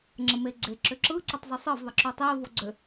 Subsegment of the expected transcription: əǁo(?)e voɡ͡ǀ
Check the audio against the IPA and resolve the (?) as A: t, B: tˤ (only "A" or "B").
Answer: B